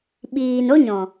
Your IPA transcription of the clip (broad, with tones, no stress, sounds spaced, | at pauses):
ɓ iː˨ n o˦ ɲ ɔ̃˨